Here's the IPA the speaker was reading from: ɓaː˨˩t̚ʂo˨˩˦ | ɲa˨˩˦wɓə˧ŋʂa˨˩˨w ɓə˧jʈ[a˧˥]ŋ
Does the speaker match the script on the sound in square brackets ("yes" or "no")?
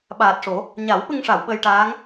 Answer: no